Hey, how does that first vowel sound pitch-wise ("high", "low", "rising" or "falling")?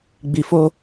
low